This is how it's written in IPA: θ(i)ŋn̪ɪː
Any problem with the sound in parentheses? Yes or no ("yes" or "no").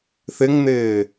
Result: yes